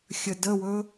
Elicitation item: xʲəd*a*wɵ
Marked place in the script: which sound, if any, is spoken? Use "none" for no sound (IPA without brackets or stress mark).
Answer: ə